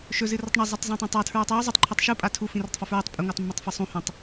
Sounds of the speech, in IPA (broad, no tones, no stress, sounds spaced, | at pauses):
ʃ ɵ z ɨ r ɐ tˤ ɳ ɐ zˤ a tˤ z õ tˤ õ tˤ a tʰ ɹ u tˤ j o zˤ u tˤ ǃʰ ɨ tˤ ʃ u pʼ a tʰ u f ĩ r ɵ tˤ f a f ɹ i tˤ pʼ i ŋʷ a tˤ mː e tˤ f ɐ sˤ ũ h ũ tˤ